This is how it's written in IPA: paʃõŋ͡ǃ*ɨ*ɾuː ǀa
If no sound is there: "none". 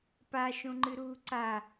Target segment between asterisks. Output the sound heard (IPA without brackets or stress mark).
ɨ